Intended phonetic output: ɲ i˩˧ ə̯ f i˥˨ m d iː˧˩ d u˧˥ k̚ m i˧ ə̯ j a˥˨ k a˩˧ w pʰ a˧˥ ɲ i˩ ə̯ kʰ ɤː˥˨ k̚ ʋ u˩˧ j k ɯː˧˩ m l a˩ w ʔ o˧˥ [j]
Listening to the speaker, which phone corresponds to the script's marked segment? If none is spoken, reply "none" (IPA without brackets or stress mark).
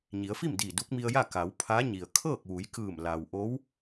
w